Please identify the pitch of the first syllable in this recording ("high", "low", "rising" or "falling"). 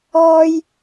low